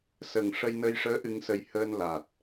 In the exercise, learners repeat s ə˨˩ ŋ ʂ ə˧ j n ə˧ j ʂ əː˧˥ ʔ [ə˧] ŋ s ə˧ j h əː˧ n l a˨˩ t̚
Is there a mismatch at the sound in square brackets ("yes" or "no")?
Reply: yes